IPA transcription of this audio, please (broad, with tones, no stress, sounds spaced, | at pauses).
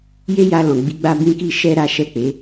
j e˦ j a˧ l ɔ̃˨ ɡ͡b i˨˦ ɡ͡b a˦ b ĩ˦ k i˦˨ ʃ ɛ˧ ɾ a˦ ʃ ɛ˦˨ k͡p e˨˦